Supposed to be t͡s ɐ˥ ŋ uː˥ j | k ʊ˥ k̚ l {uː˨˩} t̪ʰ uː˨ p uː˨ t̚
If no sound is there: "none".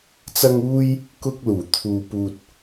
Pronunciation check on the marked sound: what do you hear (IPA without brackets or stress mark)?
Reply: uː˨˩